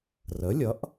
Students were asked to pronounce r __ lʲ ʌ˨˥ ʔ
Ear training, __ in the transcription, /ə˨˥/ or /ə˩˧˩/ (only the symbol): ə˨˥